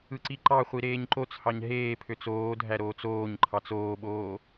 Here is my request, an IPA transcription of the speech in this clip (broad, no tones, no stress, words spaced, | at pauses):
ɯǀiǃɑχʷi ɾeːɲǃot͡shɑɲ ɦeːpʰøt͡s oːdʱæ ɾoːt͡soːɲǃʰɑt͡s oːɓoː